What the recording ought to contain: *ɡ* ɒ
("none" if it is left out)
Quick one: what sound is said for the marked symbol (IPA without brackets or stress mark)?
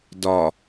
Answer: d